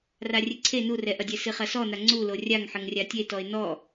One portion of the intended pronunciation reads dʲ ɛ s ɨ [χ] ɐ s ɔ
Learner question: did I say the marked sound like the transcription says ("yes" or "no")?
yes